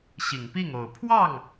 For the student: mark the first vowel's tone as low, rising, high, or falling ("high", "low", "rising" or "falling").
low